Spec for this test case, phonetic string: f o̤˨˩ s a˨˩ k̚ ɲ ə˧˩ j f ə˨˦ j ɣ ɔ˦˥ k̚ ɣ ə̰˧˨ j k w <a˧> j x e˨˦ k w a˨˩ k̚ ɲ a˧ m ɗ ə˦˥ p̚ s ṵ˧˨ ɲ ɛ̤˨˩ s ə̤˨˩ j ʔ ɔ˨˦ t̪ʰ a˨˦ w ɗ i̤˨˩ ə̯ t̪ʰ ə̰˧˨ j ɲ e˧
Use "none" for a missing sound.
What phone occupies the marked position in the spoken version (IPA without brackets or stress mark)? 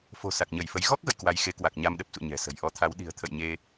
a˧